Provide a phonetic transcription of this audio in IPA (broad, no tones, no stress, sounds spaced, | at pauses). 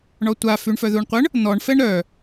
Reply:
ɳ ɔ tʷ a f y ɳ f œ ð u ɳ qʷ ə ɳ | n̪ ɔ ɳ f ɛ ɳ ɾ œ